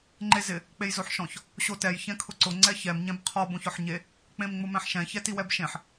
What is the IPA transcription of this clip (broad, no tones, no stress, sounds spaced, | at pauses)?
ŋ͡ǃ e z ɪ | k͡p e j z o ħ ʃ ɔ̃ ç | ɕ o t ɛ j ç ɛ̃ kʰ ʊ ǀ ʊ ŋ͡ǀ ɛ ç ɛ m ɲ ɛ̃ b qʰ ɔ b õ ç ɔ ħ ɲ e | k͡p ẽ m ŋ͡m ʊ m ɛ̃ ħ ʃ ɛ̃ ç ɛ t i w ɛ b ʃ ẽ ħ